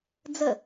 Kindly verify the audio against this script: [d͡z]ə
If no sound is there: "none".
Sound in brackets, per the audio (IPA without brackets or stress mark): d͡z